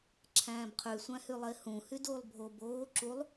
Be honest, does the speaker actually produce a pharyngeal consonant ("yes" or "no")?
no